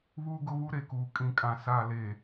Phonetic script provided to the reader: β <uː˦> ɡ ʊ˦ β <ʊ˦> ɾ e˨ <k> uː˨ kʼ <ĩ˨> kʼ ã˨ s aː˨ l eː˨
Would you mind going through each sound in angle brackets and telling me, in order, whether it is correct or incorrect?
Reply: correct, incorrect: u˦, correct, correct

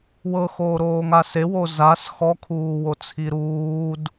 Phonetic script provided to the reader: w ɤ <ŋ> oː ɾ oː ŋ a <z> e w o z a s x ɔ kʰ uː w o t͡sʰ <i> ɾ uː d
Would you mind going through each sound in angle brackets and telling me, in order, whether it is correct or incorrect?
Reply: incorrect: x, incorrect: s, correct

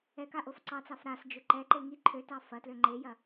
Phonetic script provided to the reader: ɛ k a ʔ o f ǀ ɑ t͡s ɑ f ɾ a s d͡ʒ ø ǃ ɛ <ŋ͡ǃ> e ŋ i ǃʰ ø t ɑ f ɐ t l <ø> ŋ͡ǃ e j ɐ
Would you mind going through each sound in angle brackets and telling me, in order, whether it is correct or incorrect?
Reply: incorrect: ǃ, correct

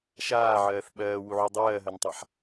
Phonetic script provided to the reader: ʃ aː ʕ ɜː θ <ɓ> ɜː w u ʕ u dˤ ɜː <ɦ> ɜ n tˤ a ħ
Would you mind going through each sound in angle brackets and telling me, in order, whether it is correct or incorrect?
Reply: correct, correct

